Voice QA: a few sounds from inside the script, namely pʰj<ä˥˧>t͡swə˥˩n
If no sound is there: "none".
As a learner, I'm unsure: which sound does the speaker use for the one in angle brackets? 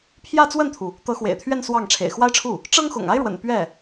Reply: ä˥˧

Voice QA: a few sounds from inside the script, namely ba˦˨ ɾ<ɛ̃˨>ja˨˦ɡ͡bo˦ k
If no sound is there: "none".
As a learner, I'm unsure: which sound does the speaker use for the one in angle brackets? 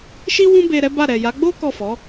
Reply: ɛ˨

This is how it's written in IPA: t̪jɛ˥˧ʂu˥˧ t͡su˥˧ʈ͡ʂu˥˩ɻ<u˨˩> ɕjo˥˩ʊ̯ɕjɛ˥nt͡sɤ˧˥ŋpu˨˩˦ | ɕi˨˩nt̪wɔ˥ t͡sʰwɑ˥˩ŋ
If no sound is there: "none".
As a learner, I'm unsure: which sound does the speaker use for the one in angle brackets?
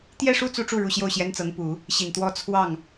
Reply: u˨˩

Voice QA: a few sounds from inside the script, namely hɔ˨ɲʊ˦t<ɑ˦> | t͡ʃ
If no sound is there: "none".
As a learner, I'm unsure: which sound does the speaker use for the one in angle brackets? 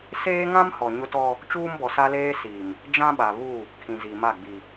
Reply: ɔ˦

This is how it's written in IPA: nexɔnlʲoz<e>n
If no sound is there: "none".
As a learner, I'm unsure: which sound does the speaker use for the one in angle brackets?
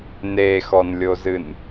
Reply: ɨ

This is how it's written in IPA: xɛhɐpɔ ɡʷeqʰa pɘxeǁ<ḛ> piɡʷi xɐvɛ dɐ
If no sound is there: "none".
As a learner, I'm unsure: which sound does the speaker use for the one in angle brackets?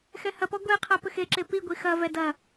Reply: e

